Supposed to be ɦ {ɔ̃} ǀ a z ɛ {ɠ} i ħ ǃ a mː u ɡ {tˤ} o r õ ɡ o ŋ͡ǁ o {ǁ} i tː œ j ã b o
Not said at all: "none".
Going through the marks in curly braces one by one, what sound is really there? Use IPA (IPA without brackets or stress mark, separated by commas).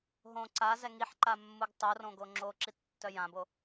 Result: õ, ŋ, tˤ, ǁ